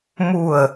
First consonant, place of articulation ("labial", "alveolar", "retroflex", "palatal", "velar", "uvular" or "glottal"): labial